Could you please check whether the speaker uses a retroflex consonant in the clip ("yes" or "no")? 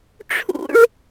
yes